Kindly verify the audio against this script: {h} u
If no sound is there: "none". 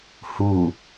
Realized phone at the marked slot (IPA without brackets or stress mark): h